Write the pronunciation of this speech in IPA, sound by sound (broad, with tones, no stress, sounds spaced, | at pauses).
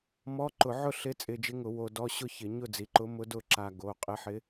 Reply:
m ɔ˧˥˧ ǃ ʊ˧˩˧ ʕ ʊ˥˨ ɬ ɪ˧˥ t͡sʼ ɪ˧ d͡ʒ ɪ˧˥ ŋ ʊ˧˩˧ w o˧ d ɔ˧˥˧ ɕ ʊ˥˨ ç ɪ˧˩˧ ɲ ʊ˥˨ d͡z i˩˧˩ ǃ ʊ˧˥ m ʊ˧˥ d ʊ˥˨ ǁ a˧ ɡ o˩˧˩ qʼ ɪ˧˥ ħ ɪ˧˥